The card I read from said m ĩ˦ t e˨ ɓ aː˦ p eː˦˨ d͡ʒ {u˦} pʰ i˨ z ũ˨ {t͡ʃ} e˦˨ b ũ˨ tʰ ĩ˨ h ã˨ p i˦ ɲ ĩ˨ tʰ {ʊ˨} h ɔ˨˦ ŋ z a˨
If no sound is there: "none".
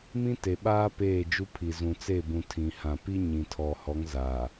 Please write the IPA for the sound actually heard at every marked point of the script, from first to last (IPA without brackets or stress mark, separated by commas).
u˦, t͡s, ɔ˨